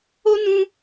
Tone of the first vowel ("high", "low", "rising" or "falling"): high